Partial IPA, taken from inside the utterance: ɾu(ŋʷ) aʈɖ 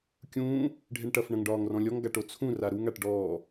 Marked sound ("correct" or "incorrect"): incorrect